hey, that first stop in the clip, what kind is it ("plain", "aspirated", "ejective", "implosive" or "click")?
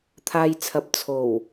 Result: aspirated